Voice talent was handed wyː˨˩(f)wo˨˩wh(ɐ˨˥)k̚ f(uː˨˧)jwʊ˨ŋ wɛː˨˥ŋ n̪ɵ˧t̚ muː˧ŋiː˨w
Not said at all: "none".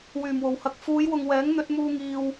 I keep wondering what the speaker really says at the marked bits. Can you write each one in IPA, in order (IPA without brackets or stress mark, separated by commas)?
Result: m, ɐ˨˥, uː˨˧